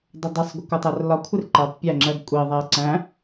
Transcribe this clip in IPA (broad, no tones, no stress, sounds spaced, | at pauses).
dˤ ʊ dˤ ɪ sˤ ɡʷ ɜ kʷ ʌ tˤ æ r l ɒ kʷʰ ɪ r ǃ ɜ tˤ pʲ æ ŋ͡ǁ ɜ ɡ kʷʼ i ðˤ æ ǀ æ̃